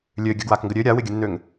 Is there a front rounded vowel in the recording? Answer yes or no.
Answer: yes